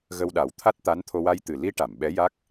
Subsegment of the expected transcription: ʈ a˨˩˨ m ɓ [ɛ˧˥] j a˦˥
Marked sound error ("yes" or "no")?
no